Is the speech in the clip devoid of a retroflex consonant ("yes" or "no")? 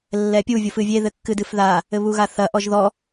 yes